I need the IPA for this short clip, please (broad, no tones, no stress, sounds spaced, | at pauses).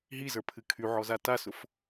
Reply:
ɦ i z ə˞ pʰ ɨ kʰ y ʕ ɔ z a t a s ʊ f